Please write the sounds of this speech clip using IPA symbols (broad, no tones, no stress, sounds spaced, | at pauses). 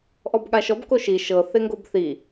ʔ ɔ b ɠ a ʃ ɔ b k o ʃ i ʃ ɤ θ e ŋ ɡ o b θ i